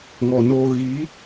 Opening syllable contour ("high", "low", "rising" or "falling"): low